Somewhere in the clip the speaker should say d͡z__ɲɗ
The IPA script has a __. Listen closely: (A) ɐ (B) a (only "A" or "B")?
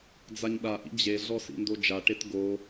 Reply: B